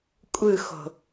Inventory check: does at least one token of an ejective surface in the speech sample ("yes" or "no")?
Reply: yes